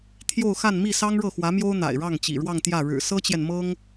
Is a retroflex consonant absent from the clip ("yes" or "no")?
no